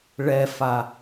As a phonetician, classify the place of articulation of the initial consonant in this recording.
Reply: retroflex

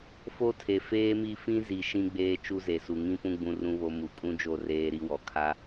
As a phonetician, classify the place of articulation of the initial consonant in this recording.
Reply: labial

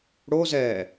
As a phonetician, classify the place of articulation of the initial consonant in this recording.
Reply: retroflex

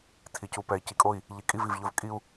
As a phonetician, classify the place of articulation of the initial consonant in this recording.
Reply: alveolar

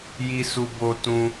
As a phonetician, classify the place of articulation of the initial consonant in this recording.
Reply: palatal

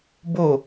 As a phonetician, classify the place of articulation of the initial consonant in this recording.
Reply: labial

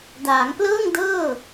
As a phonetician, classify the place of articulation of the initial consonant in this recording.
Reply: alveolar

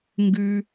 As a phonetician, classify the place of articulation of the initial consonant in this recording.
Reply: velar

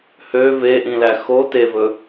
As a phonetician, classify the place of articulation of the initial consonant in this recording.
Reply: glottal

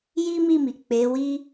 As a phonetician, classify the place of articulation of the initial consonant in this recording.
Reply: palatal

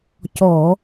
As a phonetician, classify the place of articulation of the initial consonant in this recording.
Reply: palatal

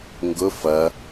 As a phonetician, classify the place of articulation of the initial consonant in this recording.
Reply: velar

